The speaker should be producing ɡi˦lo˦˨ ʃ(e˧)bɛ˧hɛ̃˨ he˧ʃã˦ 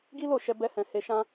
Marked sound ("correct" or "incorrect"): incorrect